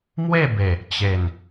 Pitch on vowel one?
falling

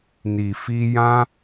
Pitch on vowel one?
low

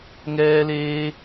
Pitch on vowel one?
high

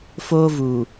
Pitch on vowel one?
high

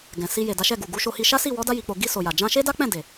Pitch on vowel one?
low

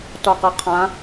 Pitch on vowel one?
low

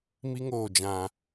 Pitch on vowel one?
high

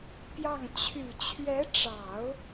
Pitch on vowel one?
falling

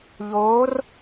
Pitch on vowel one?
rising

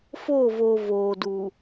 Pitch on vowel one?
falling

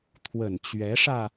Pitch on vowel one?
low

